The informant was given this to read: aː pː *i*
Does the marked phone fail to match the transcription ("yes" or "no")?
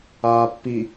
no